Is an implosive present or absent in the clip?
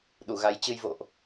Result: present